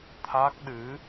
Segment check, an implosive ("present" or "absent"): present